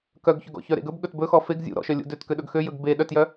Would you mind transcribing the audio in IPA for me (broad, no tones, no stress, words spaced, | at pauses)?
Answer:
kœɡçɵɡɔ̰çœ ɾḛɡɵb ɠɵtbɵxɔ feɡ zʲṵ ɾɔ̰ʃœlʲṵ døt køɗɵɡxøjɵɡ be ɗœtjœ